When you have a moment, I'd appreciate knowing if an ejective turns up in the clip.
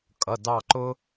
yes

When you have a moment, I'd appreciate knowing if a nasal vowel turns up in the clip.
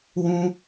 yes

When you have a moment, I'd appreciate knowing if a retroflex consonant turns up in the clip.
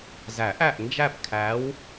no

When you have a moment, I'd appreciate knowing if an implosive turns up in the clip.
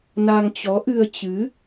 no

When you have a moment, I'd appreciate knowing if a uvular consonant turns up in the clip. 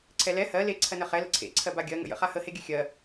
yes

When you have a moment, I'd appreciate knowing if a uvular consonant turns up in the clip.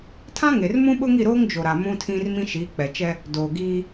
no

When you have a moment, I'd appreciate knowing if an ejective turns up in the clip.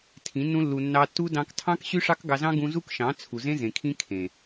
no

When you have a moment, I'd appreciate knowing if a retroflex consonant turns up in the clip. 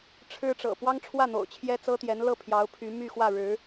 yes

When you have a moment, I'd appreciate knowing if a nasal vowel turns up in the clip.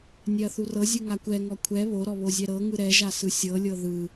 no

